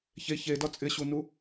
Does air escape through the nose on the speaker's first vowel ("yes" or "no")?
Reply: no